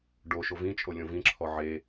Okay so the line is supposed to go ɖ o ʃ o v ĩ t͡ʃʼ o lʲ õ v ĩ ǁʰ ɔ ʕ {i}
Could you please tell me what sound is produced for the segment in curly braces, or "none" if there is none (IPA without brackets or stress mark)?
e